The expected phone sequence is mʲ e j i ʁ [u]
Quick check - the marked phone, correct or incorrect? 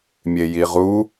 correct